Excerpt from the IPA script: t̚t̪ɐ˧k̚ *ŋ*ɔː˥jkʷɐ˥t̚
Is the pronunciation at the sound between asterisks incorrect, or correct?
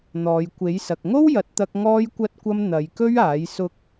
correct